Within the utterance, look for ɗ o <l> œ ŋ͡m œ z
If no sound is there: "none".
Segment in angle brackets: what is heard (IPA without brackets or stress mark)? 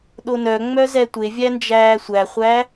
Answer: n